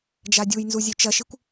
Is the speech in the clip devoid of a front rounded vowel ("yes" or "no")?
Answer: yes